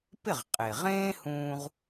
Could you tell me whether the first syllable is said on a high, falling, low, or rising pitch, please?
falling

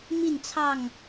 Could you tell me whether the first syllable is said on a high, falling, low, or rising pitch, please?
falling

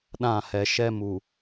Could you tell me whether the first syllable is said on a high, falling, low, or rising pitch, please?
falling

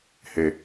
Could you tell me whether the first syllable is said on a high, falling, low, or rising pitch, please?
low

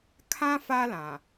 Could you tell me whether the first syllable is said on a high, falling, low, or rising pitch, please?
high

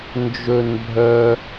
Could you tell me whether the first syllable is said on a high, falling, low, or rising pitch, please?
high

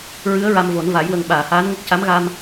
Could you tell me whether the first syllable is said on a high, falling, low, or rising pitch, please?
rising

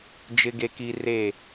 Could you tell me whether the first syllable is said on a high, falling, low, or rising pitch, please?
high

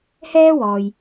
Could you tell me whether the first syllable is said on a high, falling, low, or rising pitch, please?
high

